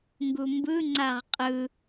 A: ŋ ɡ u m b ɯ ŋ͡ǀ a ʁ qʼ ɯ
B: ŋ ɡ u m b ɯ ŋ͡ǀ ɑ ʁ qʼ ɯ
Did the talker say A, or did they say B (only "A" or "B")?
A